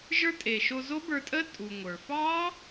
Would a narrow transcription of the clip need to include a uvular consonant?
no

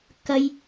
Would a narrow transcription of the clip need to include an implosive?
no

